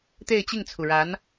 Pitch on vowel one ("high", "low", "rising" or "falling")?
falling